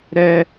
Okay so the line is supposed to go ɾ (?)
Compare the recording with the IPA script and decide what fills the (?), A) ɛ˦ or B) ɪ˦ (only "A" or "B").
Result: A